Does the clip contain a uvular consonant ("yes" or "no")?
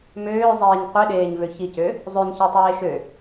yes